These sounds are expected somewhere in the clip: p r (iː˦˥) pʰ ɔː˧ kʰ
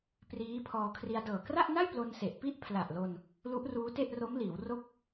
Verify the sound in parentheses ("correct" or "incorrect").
correct